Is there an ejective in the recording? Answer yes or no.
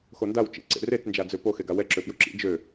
no